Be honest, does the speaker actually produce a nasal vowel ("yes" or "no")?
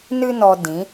yes